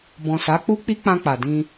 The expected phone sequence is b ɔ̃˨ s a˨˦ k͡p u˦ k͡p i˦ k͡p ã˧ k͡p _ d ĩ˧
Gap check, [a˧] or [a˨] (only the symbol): a˨